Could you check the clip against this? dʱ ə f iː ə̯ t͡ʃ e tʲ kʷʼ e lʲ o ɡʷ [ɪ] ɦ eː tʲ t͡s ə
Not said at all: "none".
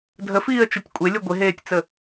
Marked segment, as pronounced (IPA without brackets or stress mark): ɪ